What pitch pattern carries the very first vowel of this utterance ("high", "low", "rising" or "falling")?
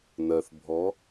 low